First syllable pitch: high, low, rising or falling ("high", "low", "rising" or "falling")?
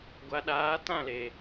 low